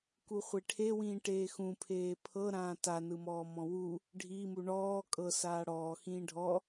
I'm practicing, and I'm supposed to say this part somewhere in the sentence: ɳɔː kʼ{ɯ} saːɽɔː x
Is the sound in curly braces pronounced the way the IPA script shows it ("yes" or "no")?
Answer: no